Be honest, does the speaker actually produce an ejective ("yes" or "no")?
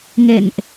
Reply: no